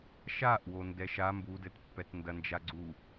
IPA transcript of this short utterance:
ʃ a ʔ w o n d ɛ ʃ a m b u d ɘ t pː ɛ t n d ɐ n d͡ʒ a ɡ͡ǀ u

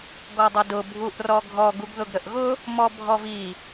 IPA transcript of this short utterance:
ɡ ɔ dˤ ʌ d ʊ bʱ u ʔ r ɔ ɡʱ ɔ ɡ u ɡ ð ʊ ɡ ɾ ə ʔ ɣ ʊ | m ɔ bʱ ɔ v i

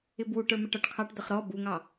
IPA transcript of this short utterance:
ɪ b w u ʈ ə˞ m ɪ ʈ ɔ ʈ kʰ ɑ ʈ d̪ ə χ ɾ ɔ b u ŋ ɑ

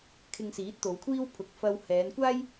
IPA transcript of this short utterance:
kʰ ɪ˧ ŋ s iː˨˥ t̚ t̪ o˨˧ w kʷʰ iː˥ w pʰ ʊ˧ k̚ f ɐ˧ w h ɛː˨˧ n kʷ aː˥ j

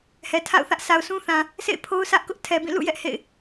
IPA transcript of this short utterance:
h ɛ˨ tʰ a̰˦˨ ʊ̯ θ ä˦ ʔ sʰ a˨ ʊ̯ sʰ ũ˦ θ ã˨ | s ḛ˦˨ ɪ̯ pʰ o˦ ʊ̯ s ä˦ ʔ k ʊ˦ ʔ tʰ ɛ˨ b ĩ˦˨ l ṵ˦˨ j ɛ˦ ʔ h ḛ˦˨ ɪ̯

